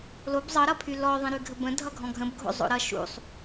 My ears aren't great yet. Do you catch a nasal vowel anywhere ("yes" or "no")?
yes